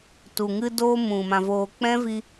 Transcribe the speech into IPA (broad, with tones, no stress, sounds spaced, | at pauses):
t u˨ ŋ ɨ˧ d oː˧ m ũ˨ m ã˧ v oː˧ k͡p ɛ̃˦ v i˧